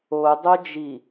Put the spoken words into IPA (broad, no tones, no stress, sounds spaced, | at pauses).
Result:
o dˤ o d͡ʒ i